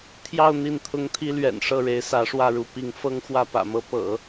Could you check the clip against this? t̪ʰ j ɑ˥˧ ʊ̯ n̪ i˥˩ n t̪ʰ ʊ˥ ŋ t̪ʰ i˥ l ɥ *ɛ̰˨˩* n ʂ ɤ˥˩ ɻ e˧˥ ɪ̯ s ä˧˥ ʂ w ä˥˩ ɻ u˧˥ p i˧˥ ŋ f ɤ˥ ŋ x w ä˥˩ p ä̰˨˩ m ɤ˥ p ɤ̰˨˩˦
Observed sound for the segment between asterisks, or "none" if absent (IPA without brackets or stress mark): ɛ̰˨˩